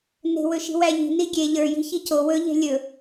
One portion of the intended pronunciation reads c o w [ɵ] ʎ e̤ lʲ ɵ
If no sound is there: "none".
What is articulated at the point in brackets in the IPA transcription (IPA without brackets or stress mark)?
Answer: ɵ